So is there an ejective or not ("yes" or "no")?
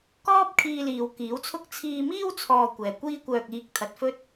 no